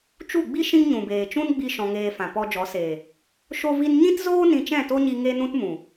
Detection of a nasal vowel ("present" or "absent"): present